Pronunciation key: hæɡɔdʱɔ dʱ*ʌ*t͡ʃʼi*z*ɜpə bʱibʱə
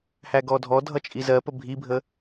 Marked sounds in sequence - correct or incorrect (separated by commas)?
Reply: correct, correct